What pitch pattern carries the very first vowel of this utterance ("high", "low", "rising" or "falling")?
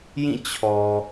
falling